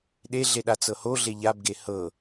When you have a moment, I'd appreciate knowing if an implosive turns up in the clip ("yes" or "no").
yes